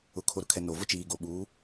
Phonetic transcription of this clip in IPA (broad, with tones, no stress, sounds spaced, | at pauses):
ʊ˨ kʰ o˨ ɾ ʊ˨ kʰ ɛ˨ n o˨ v ʊ˦ t͡ʃ iː˨ ɡ o˨ ɓ uː˨˦